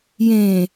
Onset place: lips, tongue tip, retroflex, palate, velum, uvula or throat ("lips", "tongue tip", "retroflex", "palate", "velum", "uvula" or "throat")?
palate